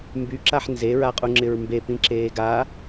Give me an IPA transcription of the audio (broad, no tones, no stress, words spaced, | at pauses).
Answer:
mbyǁaħ nzeɹaqʼuŋ͡ǁɪɹ mbepĩ ǁeːɡa